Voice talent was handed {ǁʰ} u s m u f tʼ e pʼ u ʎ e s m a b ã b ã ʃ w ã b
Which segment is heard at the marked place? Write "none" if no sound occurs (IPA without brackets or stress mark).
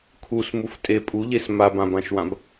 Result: kʰ